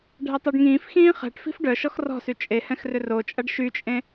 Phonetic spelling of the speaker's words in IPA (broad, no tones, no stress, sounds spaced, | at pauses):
ɖʱ ɛ tˤ œ ɖ ŋ ĩː f x ĩː χ ɛ̤ ʈ f i̤ f ɖ œ ʃ ɔ x r ɔ̤ s y t͡ʃʼ e h ɛ̃ x r ʏ r o t͡ʃʼ ɐ ɖ ʃ y t͡ʃʼ ẽ